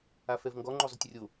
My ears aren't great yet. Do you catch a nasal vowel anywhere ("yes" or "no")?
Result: no